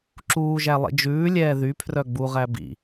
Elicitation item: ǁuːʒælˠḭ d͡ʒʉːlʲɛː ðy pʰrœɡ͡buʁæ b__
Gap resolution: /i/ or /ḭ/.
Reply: ḭ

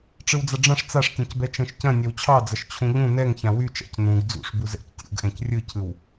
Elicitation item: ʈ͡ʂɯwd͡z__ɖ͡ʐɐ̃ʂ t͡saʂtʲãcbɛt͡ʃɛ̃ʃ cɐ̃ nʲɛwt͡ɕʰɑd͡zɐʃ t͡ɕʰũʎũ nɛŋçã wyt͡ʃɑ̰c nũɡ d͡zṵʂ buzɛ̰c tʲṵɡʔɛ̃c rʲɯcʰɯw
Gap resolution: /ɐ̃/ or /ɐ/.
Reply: ɐ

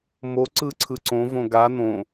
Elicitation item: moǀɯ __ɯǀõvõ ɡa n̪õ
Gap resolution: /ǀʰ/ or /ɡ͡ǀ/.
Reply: ǀʰ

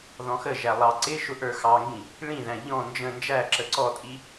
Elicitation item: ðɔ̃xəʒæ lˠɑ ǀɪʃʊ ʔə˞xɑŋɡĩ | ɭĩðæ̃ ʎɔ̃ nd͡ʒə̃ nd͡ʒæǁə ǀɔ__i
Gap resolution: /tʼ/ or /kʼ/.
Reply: tʼ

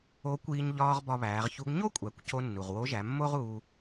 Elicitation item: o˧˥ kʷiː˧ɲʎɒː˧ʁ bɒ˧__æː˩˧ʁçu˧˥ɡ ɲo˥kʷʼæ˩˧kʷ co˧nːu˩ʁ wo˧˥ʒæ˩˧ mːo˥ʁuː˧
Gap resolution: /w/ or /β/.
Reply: β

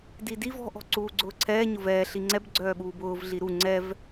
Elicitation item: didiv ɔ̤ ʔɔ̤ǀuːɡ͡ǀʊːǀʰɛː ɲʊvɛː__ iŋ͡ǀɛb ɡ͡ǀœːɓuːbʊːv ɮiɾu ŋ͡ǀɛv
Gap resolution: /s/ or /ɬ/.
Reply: ɬ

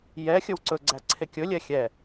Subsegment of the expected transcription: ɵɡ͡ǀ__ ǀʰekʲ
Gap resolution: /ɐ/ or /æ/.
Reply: æ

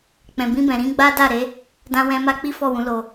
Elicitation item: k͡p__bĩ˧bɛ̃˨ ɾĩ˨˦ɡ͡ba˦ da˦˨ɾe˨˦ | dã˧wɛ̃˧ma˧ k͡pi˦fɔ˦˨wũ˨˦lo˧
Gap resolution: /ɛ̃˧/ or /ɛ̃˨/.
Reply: ɛ̃˨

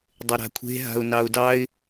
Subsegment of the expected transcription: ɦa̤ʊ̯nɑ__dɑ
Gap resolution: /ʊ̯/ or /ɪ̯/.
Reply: ʊ̯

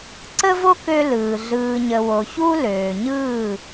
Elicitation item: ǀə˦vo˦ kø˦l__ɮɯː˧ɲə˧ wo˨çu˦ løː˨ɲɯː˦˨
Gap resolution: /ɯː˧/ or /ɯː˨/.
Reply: ɯː˨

